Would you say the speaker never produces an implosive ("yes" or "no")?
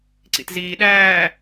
no